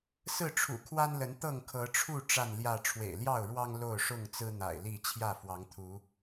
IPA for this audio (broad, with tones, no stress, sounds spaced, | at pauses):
s ɹ̩˥˨ ʈ͡ʂʰ ṵ˨˩ kʰ w a˦ n l ə˨˦ n t̪ ɤ˥˨ ŋ kʰ ɤ˨˦ ʈ͡ʂʰ u˥˨ ʈ͡ʂ a˥˨ n l j ä˥˨ ʈ͡ʂʰ w ḛ˨˩ ɪ̯ l j ɑ˥˨ ʊ̯ ɻ w ɑ˦ ŋ l o˥˨ ʊ̯ ʂ ʊ˥˨ ŋ t͡s ɹ̩˦ n̪ a̰˨˩ ɪ̯ l i˥˨ t͡ɕʰ j ä˥˨ f w ɑ˨˦ ŋ t̪ʰ u˨˦